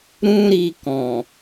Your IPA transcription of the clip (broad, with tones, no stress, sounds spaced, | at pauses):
ɾ ũ˧ ɾ i˧ k ɔ̃˨